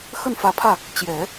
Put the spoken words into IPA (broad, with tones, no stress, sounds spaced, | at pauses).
x ə˥˩ n f ä˧˥ pʰ ä˥˩ | t͡ɕ j ɛ˨˩˦